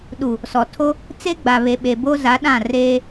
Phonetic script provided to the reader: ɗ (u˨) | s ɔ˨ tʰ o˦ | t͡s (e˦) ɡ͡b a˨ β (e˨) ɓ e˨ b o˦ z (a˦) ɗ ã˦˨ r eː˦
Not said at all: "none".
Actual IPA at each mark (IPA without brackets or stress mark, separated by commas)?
u˨, e˦, e˨, a˨˦